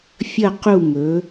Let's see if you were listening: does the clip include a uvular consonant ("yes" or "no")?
yes